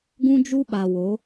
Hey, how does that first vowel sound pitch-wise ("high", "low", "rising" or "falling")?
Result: high